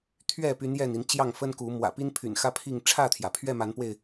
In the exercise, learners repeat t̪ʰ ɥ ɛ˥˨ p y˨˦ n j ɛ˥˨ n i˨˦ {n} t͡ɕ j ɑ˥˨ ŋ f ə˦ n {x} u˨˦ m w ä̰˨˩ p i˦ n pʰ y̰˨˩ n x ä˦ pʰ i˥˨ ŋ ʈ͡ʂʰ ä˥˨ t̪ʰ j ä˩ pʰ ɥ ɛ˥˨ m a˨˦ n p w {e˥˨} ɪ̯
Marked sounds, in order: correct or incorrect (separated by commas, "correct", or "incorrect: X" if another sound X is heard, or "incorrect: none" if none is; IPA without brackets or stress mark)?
correct, incorrect: k, correct